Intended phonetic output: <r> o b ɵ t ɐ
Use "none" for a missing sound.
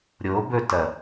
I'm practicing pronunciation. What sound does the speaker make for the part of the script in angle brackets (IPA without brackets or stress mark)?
ɾʲ